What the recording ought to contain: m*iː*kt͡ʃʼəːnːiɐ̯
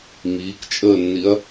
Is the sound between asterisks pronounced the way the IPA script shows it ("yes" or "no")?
yes